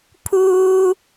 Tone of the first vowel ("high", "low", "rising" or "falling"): high